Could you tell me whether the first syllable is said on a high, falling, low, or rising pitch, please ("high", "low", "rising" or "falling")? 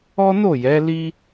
high